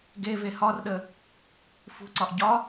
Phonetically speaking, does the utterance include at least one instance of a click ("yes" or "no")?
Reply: yes